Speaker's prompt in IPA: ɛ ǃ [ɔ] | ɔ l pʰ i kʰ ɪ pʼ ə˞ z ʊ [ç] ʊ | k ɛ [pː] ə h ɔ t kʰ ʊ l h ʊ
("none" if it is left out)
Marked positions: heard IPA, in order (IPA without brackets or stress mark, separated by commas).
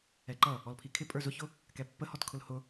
ʌ, ç, pː